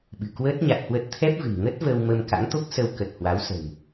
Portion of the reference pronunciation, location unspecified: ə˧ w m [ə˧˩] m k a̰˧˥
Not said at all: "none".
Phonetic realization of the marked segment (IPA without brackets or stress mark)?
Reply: ə˧